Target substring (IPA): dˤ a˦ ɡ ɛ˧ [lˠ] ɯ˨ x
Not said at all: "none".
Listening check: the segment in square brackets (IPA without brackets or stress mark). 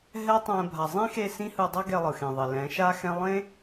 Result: lˠ